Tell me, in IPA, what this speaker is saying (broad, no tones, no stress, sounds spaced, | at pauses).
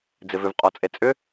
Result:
d͡z ɪ v ʏ v qʼ ɔ t͡sʼ e t͡sʼ ʏ